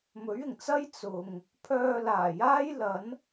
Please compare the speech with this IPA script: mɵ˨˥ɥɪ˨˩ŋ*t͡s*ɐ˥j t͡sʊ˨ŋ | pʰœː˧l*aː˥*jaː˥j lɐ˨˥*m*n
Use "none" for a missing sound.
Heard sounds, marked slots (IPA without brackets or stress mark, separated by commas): t͡s, aː˨˩, none